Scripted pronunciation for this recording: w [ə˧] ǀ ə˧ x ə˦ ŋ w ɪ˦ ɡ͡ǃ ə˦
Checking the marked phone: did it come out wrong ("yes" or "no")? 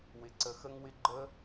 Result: yes